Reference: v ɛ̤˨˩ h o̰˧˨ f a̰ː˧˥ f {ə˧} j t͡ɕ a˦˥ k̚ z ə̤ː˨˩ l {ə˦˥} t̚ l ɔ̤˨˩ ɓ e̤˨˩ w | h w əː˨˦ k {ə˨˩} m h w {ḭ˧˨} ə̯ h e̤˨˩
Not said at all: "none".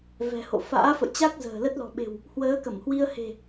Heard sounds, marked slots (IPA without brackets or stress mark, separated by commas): ə̰˧˨, ə˦˥, ə˧˩, i˧